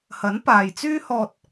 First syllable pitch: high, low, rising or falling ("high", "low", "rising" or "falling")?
rising